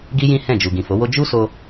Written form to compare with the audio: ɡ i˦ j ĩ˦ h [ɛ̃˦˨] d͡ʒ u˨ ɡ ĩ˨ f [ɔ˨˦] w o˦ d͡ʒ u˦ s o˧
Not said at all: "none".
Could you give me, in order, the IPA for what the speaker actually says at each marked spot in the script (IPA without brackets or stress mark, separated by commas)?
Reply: ɛ̃˦˨, o˨˦